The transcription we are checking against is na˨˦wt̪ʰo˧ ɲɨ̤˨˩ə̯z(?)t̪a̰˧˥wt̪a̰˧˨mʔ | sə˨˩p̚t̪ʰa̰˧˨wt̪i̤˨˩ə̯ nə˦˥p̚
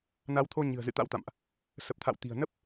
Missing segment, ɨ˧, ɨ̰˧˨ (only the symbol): ɨ̰˧˨